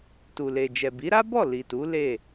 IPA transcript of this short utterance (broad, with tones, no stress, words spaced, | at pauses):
tu˨le˨d͡ʒɛ˨ bi˨˦ɾa˦bɔ˦˨ li˨tu˨˦ le˦˨